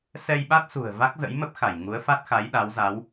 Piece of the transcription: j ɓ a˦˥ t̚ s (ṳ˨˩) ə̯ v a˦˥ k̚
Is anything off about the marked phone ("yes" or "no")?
no